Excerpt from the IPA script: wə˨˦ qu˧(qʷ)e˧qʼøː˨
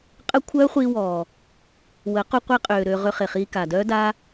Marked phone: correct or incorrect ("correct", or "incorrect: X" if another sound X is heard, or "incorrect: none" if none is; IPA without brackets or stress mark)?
correct